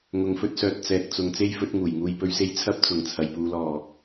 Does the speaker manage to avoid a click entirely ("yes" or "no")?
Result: yes